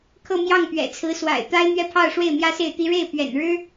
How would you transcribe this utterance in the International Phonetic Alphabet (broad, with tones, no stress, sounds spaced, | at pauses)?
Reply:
kʰ ɤ˥˧ m j ɑ˥˩ ŋ p ɥ ɛ̰˨˩ t͡sʰ ɹ̩˧˥ s w a̰˨˩ ɪ̯ t̪ a˥ ɪ̯ n̪ ɥ ɛ˥˧ pʰ ɑ˥˧ ʊ̯ ʂ w e˥˩ ɪ̯ m j ä˥ s e˥˩ ɪ̯ t̪ i˥ ɻ e˥˩ ɪ̯ p ɥ ɛ̰˨˩ n ɻ ɻ̩˥